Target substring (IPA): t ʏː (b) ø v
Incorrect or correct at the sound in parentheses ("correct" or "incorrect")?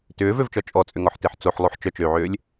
incorrect